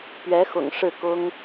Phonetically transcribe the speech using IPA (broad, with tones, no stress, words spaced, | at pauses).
pɥɛ˧˥xʊ̰˨˩ŋ ʂɻ̩˥˩kʊ˥ŋ